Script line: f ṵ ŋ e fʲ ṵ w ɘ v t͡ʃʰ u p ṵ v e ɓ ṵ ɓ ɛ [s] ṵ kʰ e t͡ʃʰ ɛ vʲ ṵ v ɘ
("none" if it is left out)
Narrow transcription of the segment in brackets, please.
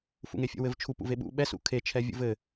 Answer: s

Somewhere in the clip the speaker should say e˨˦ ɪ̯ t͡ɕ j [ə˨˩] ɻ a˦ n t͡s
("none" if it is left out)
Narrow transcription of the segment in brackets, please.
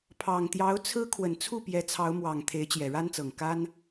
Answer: ɛ˨˩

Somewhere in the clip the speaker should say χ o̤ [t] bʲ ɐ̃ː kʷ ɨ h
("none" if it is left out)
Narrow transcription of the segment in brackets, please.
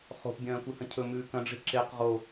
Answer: p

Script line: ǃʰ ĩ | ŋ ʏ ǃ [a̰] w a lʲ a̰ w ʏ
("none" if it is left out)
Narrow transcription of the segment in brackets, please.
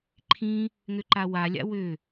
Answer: a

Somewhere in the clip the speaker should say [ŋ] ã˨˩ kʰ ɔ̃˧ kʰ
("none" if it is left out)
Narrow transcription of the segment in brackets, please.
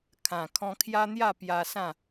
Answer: kʰ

